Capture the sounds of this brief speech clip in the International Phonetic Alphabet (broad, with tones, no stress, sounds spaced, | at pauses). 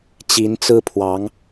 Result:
t͡ɕ i˧˥ n t͡s ɹ̩˥ pʰ w ɑ˧˥ ŋ